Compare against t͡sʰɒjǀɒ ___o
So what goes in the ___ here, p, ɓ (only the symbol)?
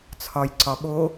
ɓ